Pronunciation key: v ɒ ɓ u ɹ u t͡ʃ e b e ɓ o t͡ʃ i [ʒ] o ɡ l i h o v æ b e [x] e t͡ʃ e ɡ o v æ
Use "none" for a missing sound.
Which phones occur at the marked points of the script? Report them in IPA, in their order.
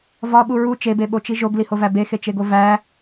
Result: ʒ, x

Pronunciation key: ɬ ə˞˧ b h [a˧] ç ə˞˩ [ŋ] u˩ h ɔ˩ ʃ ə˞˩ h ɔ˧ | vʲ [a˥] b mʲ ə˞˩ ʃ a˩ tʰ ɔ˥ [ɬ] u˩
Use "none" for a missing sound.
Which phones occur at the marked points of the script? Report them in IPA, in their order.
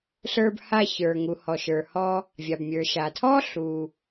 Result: a˧, ŋ, a˩, ɬ

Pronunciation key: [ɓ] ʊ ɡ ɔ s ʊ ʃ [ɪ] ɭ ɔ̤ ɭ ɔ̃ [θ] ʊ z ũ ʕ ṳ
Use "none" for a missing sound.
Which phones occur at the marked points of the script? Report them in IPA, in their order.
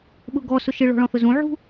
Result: ɓ, ɪ, θ

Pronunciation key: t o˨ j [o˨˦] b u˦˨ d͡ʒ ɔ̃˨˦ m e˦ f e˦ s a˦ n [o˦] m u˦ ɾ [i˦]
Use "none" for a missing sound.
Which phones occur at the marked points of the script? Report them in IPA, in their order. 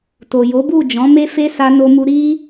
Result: o˨˦, o˦, i˦

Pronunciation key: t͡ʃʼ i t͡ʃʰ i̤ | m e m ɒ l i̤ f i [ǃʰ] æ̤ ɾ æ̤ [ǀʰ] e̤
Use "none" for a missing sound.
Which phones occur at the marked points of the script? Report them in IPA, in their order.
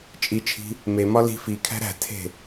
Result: kʰ, tʰ

